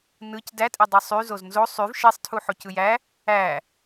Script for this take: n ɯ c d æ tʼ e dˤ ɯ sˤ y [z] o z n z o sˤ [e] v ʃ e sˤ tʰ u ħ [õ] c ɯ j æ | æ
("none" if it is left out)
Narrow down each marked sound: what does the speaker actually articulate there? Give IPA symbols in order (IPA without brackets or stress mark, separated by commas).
z, y, o